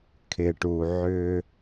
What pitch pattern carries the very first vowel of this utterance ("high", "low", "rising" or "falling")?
low